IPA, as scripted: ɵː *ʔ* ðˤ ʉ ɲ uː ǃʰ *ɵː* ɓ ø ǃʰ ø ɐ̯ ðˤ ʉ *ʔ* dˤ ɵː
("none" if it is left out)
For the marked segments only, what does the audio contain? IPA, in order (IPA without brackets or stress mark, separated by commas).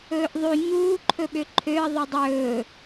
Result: ʔ, ɵ, none